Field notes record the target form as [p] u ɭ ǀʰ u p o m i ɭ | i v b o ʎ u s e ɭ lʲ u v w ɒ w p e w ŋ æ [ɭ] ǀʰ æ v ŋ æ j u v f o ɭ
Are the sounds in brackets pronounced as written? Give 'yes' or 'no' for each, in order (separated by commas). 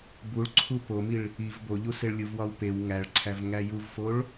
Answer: no, yes